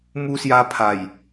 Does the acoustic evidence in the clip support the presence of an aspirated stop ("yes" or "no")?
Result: yes